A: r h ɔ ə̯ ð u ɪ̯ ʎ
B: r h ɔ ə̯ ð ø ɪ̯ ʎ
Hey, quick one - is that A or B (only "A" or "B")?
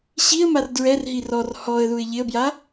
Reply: A